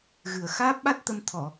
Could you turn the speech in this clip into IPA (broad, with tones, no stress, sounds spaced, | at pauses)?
ɣ ɨ˨˩ ə̯ x aː˦˥ p̚ ɓ a˦˥ t̚ t̪ ə˧ m t̪ʰ ɔ˨˩˨